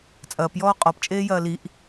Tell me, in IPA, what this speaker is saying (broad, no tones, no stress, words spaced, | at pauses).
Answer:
t͡sʼɐːpjɔː qʼɔpt͡ʃʼeː jɐːliʔ